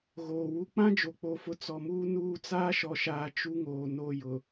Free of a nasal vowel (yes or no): no